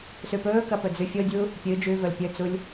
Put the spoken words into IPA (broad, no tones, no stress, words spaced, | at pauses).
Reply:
sʉpɵːkɐ pɵd͡zʉfʲodʲu | pʲɨ d͡ʒʉvɵl pʲɵt͡sulʲ